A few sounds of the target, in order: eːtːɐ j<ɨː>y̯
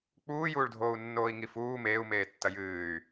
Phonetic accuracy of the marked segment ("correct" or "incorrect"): correct